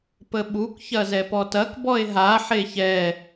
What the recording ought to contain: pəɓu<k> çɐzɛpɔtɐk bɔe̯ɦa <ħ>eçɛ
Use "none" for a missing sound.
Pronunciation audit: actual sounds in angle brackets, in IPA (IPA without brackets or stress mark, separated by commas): k, ħ